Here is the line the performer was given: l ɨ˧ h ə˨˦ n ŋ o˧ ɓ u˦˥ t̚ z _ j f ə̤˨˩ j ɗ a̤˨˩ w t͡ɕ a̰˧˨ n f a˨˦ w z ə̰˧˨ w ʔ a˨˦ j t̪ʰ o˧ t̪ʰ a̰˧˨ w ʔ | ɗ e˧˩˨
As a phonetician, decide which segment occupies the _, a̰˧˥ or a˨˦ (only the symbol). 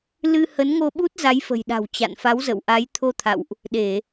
a˨˦